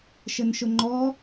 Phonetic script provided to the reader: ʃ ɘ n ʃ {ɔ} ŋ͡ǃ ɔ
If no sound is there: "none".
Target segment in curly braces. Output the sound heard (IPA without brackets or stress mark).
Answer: ʊ